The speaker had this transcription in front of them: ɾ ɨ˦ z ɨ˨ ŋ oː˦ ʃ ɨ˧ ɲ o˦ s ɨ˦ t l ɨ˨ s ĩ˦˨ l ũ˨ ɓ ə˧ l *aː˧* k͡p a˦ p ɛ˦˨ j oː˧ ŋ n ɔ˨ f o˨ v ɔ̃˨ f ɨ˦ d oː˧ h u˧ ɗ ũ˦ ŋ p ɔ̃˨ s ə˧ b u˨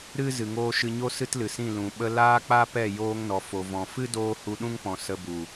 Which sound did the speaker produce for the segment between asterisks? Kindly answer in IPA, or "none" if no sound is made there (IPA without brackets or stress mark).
aː˦